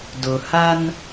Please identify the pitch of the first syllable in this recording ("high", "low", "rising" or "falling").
low